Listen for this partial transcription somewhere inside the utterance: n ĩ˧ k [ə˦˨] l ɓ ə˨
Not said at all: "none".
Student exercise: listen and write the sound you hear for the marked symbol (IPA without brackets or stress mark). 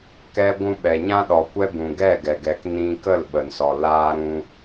ə˦˨